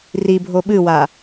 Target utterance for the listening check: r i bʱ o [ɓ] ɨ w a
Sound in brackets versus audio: correct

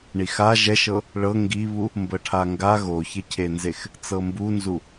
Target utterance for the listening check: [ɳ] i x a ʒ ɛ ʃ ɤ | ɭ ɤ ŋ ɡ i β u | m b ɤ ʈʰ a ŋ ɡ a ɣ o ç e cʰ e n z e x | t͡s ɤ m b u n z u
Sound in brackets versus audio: correct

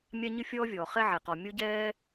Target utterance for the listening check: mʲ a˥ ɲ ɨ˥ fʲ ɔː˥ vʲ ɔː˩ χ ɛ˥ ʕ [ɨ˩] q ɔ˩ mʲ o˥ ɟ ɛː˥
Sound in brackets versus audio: incorrect: e˩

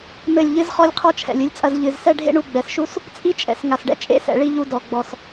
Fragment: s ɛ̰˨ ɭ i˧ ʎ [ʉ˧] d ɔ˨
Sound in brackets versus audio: incorrect: u˧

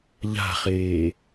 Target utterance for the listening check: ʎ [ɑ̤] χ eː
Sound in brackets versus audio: incorrect: a̤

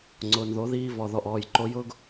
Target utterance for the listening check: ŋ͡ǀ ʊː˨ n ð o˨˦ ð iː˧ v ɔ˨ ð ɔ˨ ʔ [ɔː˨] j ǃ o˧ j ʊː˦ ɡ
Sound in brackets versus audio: correct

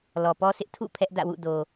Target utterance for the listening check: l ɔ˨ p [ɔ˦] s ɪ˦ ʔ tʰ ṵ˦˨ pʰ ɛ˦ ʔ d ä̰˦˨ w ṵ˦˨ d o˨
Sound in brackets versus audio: correct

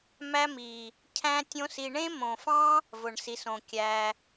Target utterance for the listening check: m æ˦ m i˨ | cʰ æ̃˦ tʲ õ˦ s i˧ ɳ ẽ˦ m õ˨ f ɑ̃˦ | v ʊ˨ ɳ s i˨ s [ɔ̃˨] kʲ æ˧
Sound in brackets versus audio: incorrect: õ˨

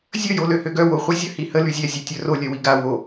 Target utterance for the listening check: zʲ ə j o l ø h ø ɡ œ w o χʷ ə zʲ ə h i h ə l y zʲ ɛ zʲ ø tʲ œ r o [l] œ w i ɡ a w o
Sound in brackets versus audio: incorrect: lʲ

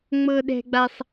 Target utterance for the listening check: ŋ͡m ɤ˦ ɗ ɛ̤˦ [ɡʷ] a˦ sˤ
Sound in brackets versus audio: incorrect: ɡ͡b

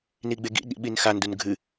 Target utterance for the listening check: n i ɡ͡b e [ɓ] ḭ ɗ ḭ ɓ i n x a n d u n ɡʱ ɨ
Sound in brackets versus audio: incorrect: ɡ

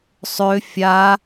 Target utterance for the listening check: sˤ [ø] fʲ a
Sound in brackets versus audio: correct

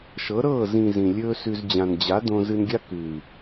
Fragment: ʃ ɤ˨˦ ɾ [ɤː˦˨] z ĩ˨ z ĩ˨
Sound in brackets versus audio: correct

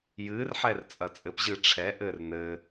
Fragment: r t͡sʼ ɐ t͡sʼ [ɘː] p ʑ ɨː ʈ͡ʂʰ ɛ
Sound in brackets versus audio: incorrect: ɘ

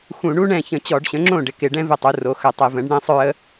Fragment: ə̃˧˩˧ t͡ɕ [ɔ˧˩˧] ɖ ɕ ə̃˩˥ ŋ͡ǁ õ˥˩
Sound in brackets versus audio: correct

